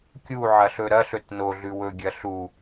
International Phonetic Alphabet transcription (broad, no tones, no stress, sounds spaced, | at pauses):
kʲ u ʕ ɐ ɬ ɵ ɾ ɐ ɬ ɵ t n o ɮ ʉ w ɵ ɡʲ ɐ ɬ u